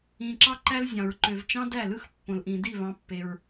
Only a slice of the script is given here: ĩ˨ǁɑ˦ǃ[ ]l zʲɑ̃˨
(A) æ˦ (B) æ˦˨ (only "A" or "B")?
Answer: A